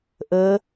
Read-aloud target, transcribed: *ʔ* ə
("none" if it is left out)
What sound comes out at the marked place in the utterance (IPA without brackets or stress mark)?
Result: ʔ